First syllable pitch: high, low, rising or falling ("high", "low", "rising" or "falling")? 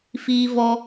high